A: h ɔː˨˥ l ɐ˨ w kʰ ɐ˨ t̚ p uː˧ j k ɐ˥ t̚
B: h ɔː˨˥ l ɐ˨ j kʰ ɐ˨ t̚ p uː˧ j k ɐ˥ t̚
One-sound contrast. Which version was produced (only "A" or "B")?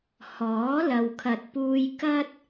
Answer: A